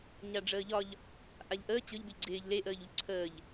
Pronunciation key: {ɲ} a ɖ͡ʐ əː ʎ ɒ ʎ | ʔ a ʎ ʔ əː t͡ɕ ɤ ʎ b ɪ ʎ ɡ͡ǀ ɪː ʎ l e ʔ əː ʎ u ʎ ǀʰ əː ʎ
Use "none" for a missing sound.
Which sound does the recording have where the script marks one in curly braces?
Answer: ɲ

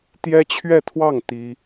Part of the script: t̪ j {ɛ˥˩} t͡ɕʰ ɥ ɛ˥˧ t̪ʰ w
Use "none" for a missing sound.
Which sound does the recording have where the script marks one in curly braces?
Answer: ɛ˥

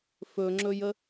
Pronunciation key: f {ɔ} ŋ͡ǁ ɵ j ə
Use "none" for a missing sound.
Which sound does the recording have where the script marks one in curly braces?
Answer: ɵ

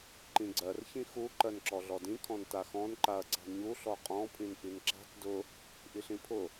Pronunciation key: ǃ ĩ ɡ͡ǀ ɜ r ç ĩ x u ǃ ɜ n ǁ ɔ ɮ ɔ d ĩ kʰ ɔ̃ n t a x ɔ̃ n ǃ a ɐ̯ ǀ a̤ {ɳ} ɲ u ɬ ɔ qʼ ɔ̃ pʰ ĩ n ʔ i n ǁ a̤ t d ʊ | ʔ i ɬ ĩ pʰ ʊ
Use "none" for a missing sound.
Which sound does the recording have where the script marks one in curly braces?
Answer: ɳ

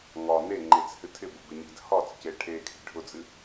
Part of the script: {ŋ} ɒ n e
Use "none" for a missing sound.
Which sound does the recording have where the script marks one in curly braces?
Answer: ŋ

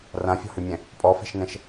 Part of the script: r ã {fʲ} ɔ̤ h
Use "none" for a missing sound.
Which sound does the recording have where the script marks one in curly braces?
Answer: fʲ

